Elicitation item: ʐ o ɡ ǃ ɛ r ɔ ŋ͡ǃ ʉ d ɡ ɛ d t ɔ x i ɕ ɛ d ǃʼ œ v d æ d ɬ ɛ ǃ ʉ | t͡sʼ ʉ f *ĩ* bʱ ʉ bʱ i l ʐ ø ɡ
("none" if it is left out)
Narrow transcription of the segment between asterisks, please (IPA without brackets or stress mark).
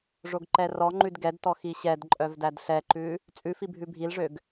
i